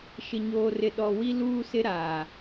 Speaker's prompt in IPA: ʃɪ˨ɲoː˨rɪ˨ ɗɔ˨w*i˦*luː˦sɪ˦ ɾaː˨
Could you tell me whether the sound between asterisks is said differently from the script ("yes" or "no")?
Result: no